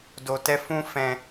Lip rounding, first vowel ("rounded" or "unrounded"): rounded